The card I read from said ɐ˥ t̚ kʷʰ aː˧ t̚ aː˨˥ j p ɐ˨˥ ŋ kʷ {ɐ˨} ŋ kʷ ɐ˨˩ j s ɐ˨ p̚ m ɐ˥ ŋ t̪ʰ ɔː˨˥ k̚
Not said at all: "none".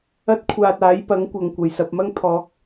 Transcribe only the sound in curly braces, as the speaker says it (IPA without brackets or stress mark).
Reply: ɐ˨